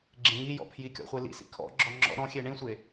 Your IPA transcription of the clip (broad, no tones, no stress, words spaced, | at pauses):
ɡ͡ǁẽŋijɔ̰ pʰjikʲɔ̰χʷe lḭsḭ kʰɔ̰ɡ͡ǁɔ ŋ͡ǁɔ̰ ɾɔ̃xʲe ɳĩsʷe